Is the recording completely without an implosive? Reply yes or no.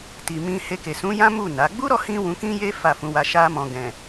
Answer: yes